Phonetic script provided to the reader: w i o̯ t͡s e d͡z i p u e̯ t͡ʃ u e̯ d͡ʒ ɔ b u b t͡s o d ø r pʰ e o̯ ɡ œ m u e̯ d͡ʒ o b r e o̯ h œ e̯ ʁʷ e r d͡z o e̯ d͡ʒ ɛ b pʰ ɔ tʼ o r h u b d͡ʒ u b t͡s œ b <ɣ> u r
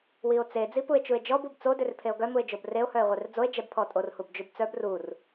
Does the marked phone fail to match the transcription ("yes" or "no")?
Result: yes